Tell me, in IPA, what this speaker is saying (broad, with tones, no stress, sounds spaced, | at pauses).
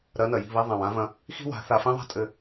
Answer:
ɾ ɐ˨˦ n ɐ˨ j i̤˦˨ β i˧ ðˤ ã˨ w ã˦ v ɐ̃˧ | x i̤˦ w a̤˨˦ θ a˧ f ĩ˦ ðˤ a̤˦ tʼ ɘ˧